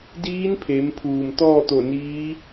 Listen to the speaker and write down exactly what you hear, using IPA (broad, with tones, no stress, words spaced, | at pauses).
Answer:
diː˧˥n pʰe˩˧mpʰuː˩m t̪ɔː˥˨t̪o˧˩niː˧˥